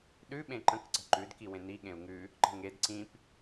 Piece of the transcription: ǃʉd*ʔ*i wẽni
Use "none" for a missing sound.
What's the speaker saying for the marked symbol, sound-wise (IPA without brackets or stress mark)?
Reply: k